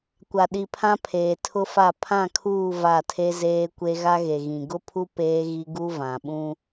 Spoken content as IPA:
kʷ a˨ ɗ i˨ pʰ ã˦ pʰ eː˨ tʰ ʊ˦ f a˦˨ pʰ ã˦˨ kʰ uː˦˨ v a˦˨ tʰ e˦ z eː˦ kʷ e˦ ɣ a˦ ɣ e˨ ɣ ĩ˨ ɡ ʊ˦ pʰ u˦ p eː˦ ɣ i˦ ɡ u˦ v ã˨ ɓ ũ˦

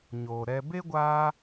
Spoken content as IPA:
ɲ o˨ ɾ ɛ˧ b e˦ ɡʷ aː˧

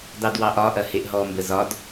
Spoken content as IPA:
d ɑ d w ɑ ʔ ɒ ʔ ɐ h e ʔ ɦ ɔ m b ə z ɒ d

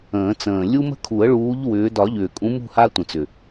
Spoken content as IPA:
ə̃ː˨˩˦ t͡s ə̃ː˨˩ lʲ u˦ m ə̤˦ kʰ u˨˩˦ ə̯ ɭ uː˨˦ ʎ w ʏː˨˦ d ɒ˨˩˦ ʎ ʏː˨˩ kʼ ũ˨˦ m ṳ˦˨ h a˦ tʷ ə̃˨˩ t͡s ʏ˨˩

